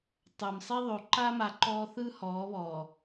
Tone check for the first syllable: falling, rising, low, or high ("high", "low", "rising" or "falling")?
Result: low